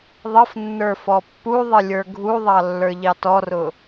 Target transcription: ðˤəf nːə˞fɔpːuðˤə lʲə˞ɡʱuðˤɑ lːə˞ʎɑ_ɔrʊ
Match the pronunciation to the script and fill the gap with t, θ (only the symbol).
t